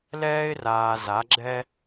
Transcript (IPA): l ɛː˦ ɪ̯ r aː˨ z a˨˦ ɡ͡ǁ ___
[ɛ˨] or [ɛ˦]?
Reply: ɛ˦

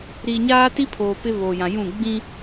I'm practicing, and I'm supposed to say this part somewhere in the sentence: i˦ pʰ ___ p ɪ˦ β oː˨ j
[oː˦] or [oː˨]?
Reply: oː˨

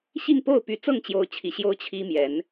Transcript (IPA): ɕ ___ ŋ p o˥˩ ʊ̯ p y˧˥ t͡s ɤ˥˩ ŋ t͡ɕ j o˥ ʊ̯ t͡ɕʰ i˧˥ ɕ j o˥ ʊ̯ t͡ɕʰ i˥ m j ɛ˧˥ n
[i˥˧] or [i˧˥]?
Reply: i˥˧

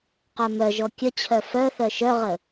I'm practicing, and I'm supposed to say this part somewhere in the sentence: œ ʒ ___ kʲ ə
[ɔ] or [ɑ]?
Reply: ɔ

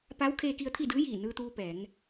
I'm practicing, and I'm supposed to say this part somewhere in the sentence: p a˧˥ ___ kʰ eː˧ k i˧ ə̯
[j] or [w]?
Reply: w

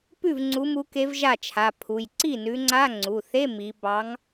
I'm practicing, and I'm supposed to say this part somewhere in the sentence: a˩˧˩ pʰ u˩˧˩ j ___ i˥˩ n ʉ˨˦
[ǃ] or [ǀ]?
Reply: ǀ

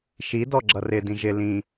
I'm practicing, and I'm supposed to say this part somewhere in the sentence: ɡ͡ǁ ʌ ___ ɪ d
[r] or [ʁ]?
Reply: r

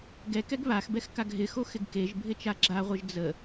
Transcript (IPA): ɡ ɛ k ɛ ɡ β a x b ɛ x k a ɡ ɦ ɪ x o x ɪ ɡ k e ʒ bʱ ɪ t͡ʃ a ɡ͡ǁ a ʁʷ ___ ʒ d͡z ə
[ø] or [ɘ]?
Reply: ɘ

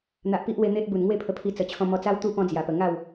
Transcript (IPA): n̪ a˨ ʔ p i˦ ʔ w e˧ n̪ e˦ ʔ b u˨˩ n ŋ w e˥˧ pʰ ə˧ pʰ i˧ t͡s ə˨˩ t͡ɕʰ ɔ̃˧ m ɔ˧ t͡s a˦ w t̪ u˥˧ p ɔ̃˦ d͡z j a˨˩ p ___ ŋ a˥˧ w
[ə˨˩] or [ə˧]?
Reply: ə˨˩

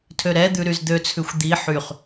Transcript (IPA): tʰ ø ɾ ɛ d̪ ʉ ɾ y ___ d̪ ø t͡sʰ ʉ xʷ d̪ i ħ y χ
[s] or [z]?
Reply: z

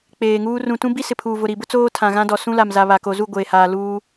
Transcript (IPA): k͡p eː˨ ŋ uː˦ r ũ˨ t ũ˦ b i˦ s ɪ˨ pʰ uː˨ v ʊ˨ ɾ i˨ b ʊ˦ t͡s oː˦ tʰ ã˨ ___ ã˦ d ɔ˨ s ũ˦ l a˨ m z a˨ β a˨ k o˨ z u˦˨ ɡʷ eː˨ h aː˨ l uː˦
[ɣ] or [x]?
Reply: ɣ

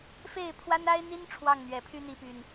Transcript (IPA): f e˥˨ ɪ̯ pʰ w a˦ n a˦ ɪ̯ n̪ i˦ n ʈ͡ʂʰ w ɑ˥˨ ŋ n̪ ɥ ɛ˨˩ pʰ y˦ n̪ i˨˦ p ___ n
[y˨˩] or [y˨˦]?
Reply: y˨˩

